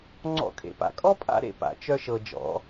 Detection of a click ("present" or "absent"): present